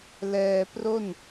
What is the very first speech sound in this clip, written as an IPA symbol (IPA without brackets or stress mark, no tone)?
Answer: l